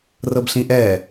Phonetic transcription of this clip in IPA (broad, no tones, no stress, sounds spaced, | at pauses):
r ɤ b ɬ ĩ ʔ ɛ